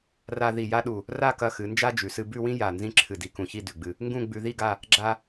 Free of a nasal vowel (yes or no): no